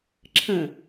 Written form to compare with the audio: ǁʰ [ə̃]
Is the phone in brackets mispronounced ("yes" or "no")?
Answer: no